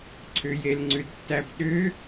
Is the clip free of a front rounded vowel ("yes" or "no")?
no